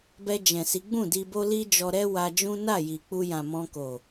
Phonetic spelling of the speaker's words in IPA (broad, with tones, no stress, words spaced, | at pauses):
bɛ˧d͡ʒɛ̃˨si˨˦ɡ͡bũ˦˨ di˧bo˦li˦ d͡ʒɔ˧ɾɛ˦wa˧d͡ʒũ˦ na˦˨ji˨k͡pu˧jã˨ mɔ̃˧ko˨